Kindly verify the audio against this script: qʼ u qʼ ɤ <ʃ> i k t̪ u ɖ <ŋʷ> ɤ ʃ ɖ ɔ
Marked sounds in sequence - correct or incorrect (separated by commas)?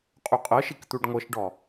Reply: correct, correct